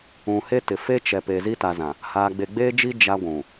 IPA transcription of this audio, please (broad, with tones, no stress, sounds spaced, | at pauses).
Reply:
ũ˨ h e˦ t ɪ˨ f e˦ t͡ʃ ɛ˨ p e˨ z i˦ t a˨ z ã˨ | h aː˨ ɡ͡b e˨ ɡ͡b eː˦ d͡ʒ i˦ d͡ʒ a˦ ɡʷ ũ˨